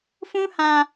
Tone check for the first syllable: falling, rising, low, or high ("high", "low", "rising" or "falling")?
high